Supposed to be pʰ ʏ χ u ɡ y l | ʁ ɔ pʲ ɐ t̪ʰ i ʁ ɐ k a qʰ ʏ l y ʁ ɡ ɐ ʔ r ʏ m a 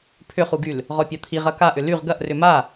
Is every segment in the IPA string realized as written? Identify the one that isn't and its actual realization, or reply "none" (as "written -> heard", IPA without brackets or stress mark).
qʰ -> ʔ